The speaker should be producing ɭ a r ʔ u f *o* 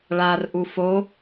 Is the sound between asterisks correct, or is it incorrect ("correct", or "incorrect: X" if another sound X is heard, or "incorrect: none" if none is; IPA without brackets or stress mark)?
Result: correct